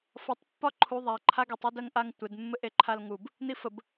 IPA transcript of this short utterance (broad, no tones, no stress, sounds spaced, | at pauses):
f ɒ tˤ pː ɒ ǃʰ u ðˤ a ǃʰ a ɡ e tˤ e d ɜ ŋ ʔ a ŋ tʷ ɪ d mː ɘ ʔ e ǃʰ a l ŋ u b | n i f ə b